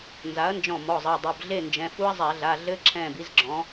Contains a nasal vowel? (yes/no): yes